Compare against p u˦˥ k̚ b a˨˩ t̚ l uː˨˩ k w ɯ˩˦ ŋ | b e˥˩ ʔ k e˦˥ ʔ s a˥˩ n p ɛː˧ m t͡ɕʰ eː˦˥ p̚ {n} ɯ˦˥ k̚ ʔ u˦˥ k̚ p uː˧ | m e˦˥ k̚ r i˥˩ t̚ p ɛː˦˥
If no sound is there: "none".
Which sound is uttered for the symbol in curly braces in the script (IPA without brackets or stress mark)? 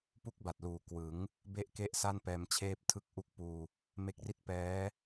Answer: tʰ